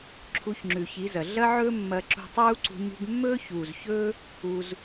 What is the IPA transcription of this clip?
ǁʰu˧çŋ͡ǁʉ˨çi˨˦zɐ˨ ɮɐ˦ʕɵː˦ mːɐ˧ǁṳ˧tˤuː˦ǀṳ˧ ɲṳ˦ɡ mːɵː˦çuː˨zçɵː˦ | u˧z

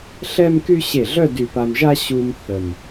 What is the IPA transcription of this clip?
ɬɛ˥mky˥ ɕe˧˩ɮœ˥˧ dy˧˩pa˧mʒa˥ ɕu˧m θə˧˩m

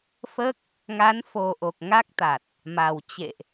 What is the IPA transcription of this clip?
fəː˦˥k̚ | ŋa˨˦nfo˨˩ʔo˨˩k̚ ŋa˦˥k̚t̪a˨˩t̚ | ma˨˩w t͡ɕḛ˧˨ʔ

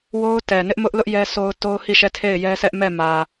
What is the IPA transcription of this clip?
wo˦ʊ̯tɛ˨nɪ˦ʔ mʊ˦ʔlʊ˦ʔ jɛ˦sʰo˦ʊ̯ to˦ʊ̯hi˦˨ʃɛ˦˨ tʰe˦˨ɪ̯jɛ˦sʰɛ˦ʔ mɛ˦˨mä˨

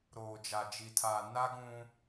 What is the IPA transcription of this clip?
ɾoː˨d͡ʒa˨d͡ʒi˨tʰaː˨ na˦ ɡũ˦

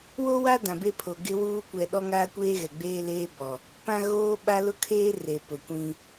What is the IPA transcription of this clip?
wo˦wa˦ dã˨be˦pʰo˨ ɡɪ˦wuː˦ kʷɛ˨ɗɔ˦ŋaː˦kʷeː˦ ɣɛ˨ɡ͡beː˦leː˦bɔ˨ | pã˦ɣoː˦ɓa˦ lʊ˦kʰeː˦ re˨pʊ˨kʷĩ˦

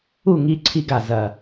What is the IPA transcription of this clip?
u˥˩ŋi˧ǀʰi˧ɡa˩ zɐ˩

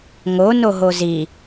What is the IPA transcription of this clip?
ŋo noɦozi

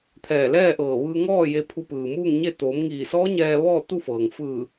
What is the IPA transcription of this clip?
t̪ʰɛː˧˩lɛː˥˨ʔɤː˧˩ʋɯː˧ ŋɔː˥˨ je˧pʰu˧pɯː˩ muː˥˨ŋɲe˥˨ t̪oː˩˧mŋiː˧˩sɔː˧˥ ɲɛː˧ ʋɔː˥˨t̪u˥˨fɤː˩ŋ fɯː˧˩

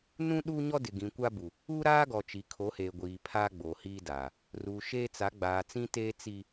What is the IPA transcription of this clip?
nũ˦ ɗuː˦ɲɔ˦dɪ˨ ɡĩ˨kʷa˦bu˨ | uː˦ɾaː˦ɡɔ˨t͡ʃi˨ kʰo˨˦heː˨ɡʷiː˨ pʰaː˦ɡ͡bo˨hiː˦daː˨ | ruː˨ʃeː˦t͡sa˨˦ ɡ͡baː˨t͡sĩ˦teː˦ t͡si˦

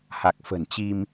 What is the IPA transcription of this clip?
ha˨˩k̚fə̤˨˩nt͡ɕi˧m

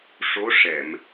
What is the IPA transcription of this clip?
ʂo˧˥ ʂɛ˨˩˨m

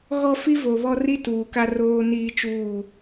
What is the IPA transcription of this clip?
ɣɔ˦ fi˦vo˨βɔ˦ ri˦ tuː˨ka˦ roː˦ niː˦t͡ʃuː˦˨

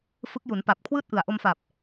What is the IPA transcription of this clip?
fɯ˦˥k̚ju˩˦n pa˨˩p̚ kʰwɯː˥˩t̚ʔɯ˨˩a̯ʔo˧mfaː˨˩p̚

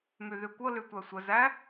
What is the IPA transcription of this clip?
myðykʷɤ lytʷæsʷə zæ

